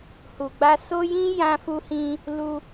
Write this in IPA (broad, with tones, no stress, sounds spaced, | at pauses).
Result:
h u˨ ɡ͡b a˧ s o˦ j ĩ˦ j ã˧ f u˧ h ĩ˧ | l u˧